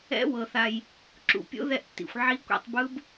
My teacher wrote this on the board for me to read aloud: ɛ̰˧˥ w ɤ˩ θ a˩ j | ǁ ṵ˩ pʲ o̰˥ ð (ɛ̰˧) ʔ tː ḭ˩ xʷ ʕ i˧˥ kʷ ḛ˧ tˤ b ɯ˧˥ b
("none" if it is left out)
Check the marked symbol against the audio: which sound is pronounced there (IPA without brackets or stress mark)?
ɛ˧